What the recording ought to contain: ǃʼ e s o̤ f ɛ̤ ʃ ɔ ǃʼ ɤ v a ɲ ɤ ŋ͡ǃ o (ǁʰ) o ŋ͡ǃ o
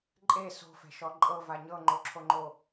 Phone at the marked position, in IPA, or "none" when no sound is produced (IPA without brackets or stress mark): ǁʰ